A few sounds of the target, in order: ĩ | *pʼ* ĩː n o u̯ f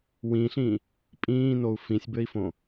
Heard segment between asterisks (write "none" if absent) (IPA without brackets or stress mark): pʼ